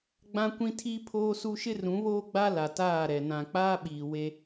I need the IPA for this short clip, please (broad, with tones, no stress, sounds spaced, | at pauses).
ɡ͡b ã˦ kʷ ĩ˦ tʰ i˦ pʰ oː˦ s u˦ ʃ ɪ˦ r ũ˨˦ β oː˦ ɡ͡b a˦ l a˨ t aː˦˨ ɾ ɛ˨ n ã˨ k͡p aː˦ ɓ iː˨ w e˦